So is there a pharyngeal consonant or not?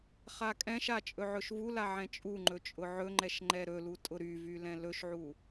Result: yes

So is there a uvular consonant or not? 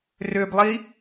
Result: no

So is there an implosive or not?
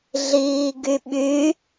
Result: yes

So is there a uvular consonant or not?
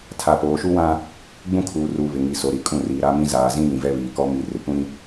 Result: no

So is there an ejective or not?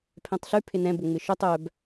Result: no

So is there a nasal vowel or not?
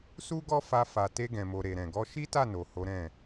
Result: yes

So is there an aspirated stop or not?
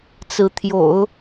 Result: yes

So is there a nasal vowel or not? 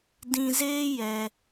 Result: yes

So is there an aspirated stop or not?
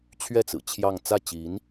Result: yes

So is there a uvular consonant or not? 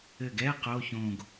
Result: yes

